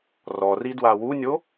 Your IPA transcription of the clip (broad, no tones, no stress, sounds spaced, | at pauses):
r ɔ r i d w a w u nʲ o